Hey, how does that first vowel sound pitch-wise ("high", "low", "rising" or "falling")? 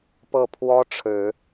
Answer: falling